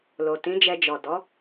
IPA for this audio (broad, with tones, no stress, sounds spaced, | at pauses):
l o˨ t ĩ˨˦ d͡ʒ ɛ˧ d͡ʒ ɔ˨ d ɔ˨˦